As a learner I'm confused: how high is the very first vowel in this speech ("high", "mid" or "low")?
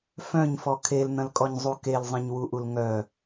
mid